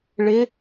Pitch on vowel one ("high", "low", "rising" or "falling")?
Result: rising